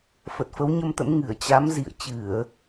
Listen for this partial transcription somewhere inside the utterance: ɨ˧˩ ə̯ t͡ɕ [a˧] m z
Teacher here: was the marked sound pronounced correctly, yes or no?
no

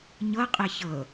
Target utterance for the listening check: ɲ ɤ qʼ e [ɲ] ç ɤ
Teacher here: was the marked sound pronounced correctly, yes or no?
no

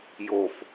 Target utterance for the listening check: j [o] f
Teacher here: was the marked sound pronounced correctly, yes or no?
yes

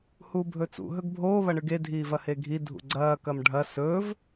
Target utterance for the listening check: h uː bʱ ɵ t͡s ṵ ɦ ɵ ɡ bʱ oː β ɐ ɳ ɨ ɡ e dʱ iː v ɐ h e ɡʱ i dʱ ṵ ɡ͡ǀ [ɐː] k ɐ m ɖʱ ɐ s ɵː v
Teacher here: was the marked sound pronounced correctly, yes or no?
yes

